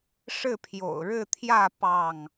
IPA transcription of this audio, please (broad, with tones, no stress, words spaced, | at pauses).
ʂɻ̩˥˨pʰjo̰˨˩ʊ̯ ɻɻ̩˥˨t̪ʰjä˥˨ pɑ˥˨ŋ